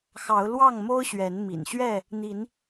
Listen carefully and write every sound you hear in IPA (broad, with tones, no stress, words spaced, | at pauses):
xɑ˨˦ʊ̯ lwɑ˥˨ŋmo˦ʊ̯ɕɥɛ˨˦n mḭ˨˩n ɕɥɛ˥˨ | n̪i˨˦n